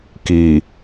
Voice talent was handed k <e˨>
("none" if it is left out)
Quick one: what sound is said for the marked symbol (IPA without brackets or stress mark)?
i˨